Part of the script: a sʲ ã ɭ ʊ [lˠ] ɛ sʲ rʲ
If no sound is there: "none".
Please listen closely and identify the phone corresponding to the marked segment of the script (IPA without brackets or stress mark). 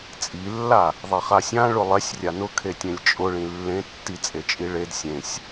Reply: lˠ